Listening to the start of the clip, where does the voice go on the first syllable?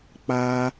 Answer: high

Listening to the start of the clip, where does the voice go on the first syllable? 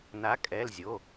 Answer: rising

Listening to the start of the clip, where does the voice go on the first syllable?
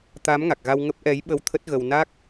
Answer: rising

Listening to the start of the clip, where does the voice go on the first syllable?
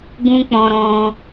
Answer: high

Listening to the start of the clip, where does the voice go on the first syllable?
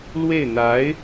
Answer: falling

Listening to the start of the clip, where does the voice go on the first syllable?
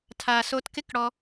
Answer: low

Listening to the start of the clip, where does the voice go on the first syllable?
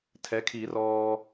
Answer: rising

